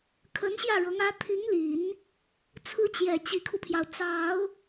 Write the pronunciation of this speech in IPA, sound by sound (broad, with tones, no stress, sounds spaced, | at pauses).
kʰ ə˧˥ n ɕ j ä˥˩ ɻ ɤ˧˥ ŋ ä˧˥ t̪ʰ i˧˥ ŋ l i˨˩˦ n | t͡sʰ ɹ̩˥ t͡ɕ j ɛ˨˩ t͡ɕ i˧˥ kʰ u˧ pʰ j ɑ˩ ʊ̯ t͡s ɑ˨˩˦ ʊ̯